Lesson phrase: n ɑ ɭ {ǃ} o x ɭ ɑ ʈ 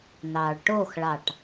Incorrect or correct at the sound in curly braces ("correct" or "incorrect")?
incorrect